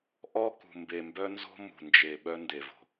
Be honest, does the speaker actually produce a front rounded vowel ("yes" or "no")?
yes